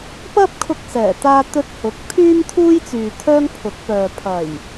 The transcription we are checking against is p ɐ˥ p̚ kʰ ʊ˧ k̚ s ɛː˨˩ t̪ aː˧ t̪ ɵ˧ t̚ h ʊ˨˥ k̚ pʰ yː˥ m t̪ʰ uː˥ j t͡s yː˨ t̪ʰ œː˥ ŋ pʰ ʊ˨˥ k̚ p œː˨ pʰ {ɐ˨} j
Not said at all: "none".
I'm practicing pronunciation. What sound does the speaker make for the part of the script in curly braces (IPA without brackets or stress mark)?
ɐ˨˩